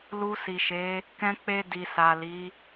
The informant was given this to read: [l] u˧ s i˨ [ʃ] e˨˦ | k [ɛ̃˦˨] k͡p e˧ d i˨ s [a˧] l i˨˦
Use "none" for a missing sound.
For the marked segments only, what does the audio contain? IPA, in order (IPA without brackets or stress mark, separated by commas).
l, ʃ, ɛ̃˧, a˨